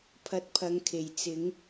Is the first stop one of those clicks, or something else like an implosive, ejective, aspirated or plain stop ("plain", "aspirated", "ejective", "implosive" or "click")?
aspirated